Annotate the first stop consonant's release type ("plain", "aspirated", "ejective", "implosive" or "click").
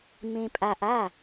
ejective